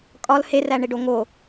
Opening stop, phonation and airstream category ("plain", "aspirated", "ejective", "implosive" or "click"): ejective